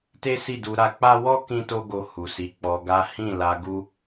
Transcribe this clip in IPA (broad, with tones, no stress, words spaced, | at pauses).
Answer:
te˦si˦˨du˧ ɾa˧k͡pa˦ wɔ˦ kĩ˦to˦ɡo˧ hu˨si˨˦ k͡pɔ˧ɡa˦ hĩ˦˨la˧ ɡu˦